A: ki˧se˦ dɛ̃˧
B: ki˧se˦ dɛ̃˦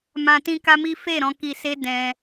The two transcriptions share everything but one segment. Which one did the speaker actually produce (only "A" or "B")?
B